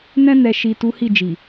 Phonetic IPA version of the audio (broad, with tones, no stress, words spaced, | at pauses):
nɛ̃˧nɛ˨ʃi˨ tu˨˦hi˦˨d͡ʒi˨